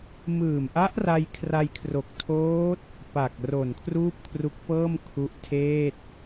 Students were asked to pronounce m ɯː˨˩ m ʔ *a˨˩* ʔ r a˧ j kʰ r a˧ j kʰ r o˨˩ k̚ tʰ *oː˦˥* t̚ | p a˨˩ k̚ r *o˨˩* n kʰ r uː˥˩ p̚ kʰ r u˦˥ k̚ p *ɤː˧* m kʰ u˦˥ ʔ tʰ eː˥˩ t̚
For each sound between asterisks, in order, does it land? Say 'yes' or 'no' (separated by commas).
no, yes, yes, no